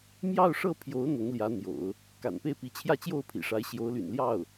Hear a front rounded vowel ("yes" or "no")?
yes